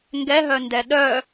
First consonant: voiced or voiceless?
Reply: voiced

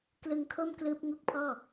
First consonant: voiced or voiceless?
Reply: voiceless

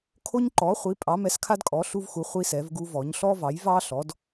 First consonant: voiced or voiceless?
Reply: voiceless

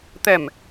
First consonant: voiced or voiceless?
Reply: voiceless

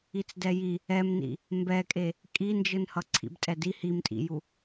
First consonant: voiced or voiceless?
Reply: voiceless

